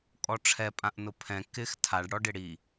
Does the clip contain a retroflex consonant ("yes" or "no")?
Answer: yes